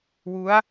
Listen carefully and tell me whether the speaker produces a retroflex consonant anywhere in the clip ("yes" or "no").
no